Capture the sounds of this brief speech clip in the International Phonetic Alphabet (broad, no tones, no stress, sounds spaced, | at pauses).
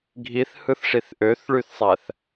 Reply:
ɡʱ i θ h ɯ θ ʂ i θ ʔ ø θ ɭ y θ sˤ æ θ